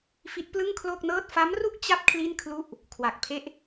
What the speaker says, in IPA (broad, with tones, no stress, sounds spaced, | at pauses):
f i˦˥ t̚ p l ɯ˥˩ ŋ kʰ l o˥˩ k̚ n ɤː˥˩ t̚ f a˦˥ m r u˥˩ k̚ t͡ɕ a˥˩ p̚ kʰ l i˥˩ n kʰ l u˥˩ ʔ | kʰ w a˨˩ k̚ pʰ e˥˩ ʔ